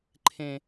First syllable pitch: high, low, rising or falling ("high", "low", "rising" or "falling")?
low